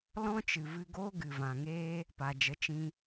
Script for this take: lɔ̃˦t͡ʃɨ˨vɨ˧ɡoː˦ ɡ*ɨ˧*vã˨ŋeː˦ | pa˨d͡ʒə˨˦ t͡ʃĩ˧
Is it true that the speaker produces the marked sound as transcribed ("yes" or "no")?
no